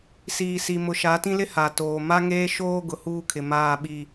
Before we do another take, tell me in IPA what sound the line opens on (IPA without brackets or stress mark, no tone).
s